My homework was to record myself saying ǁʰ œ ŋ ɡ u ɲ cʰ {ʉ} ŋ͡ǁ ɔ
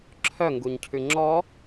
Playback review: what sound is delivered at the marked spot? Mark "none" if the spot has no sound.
ʉ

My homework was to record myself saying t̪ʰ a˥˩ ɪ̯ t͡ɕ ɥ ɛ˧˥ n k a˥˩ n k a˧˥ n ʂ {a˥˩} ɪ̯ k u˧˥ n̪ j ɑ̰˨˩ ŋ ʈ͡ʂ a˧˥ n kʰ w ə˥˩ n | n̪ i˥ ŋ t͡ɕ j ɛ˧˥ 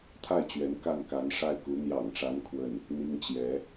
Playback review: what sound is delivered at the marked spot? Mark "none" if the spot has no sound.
a˥˩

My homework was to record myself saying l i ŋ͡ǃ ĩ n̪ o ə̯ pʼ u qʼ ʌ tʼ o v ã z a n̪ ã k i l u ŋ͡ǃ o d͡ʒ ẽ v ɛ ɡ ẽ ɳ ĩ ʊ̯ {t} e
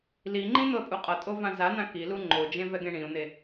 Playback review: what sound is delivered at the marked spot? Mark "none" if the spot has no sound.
n̪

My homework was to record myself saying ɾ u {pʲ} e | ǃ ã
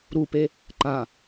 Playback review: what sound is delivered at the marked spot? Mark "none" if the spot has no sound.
p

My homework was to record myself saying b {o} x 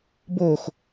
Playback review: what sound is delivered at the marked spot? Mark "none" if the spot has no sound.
o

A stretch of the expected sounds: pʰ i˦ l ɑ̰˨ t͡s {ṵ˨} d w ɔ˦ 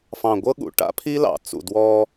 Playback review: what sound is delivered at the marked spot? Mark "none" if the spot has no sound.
ṵ˨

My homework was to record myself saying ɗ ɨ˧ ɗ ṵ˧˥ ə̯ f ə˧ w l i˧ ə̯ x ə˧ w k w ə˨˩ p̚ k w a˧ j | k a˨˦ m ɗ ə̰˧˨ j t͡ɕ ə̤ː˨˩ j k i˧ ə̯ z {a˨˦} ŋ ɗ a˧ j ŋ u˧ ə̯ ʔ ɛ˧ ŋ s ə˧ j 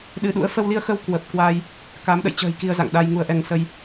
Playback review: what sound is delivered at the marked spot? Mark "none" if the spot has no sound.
a̰˧˨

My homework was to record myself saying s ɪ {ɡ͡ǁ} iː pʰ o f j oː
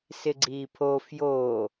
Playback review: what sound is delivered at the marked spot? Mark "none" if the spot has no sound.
ɡ͡ǀ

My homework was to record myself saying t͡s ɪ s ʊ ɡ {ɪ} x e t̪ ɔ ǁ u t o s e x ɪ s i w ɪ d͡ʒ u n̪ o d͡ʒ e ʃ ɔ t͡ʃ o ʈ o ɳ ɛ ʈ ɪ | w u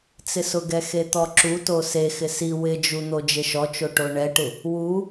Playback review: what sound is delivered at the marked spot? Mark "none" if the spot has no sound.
ɛ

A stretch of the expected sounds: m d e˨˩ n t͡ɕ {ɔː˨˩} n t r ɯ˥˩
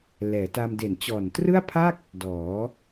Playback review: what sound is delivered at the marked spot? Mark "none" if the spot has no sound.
ɔː˨˩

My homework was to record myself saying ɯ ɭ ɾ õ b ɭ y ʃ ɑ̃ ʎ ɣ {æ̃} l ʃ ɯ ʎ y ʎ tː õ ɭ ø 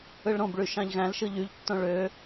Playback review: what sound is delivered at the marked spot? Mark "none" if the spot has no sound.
æ̃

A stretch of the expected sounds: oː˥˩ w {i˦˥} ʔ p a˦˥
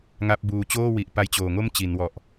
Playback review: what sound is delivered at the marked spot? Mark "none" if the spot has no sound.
i˨˩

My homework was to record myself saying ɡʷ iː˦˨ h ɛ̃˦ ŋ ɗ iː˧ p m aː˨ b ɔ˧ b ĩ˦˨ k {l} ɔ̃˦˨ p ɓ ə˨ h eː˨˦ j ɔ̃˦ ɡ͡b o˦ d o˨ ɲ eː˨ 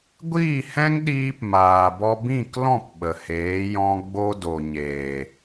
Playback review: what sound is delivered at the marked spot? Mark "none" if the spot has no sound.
l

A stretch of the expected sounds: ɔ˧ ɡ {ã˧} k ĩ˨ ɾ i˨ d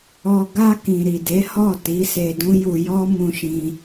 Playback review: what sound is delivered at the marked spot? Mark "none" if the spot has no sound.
a˧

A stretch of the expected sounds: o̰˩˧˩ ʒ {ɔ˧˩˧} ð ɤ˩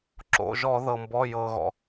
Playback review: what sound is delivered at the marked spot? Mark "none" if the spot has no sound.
ɔ˧˩˧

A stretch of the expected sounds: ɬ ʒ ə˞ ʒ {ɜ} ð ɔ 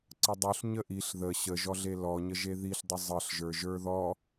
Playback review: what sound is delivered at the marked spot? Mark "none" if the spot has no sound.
ə˞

